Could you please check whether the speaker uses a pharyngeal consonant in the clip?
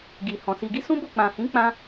no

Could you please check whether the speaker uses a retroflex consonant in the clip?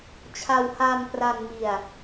no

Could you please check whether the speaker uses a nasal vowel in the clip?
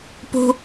no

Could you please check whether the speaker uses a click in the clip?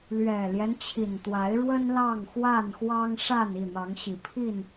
no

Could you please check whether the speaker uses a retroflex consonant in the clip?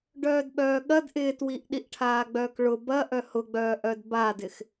yes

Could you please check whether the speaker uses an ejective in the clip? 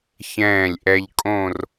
yes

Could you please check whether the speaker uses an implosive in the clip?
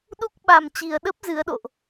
yes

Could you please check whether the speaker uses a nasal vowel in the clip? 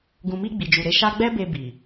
yes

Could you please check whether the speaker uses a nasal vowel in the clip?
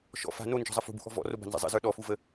no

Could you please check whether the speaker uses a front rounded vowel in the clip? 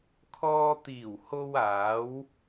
no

